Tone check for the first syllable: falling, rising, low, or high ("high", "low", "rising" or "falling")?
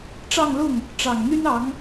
falling